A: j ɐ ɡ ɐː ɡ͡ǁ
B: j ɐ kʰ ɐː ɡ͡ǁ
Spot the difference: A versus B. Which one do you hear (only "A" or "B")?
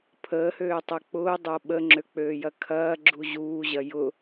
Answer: B